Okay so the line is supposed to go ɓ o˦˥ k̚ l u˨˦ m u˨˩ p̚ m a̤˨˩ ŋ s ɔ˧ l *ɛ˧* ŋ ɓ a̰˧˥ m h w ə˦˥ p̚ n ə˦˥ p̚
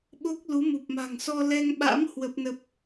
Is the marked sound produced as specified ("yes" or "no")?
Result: yes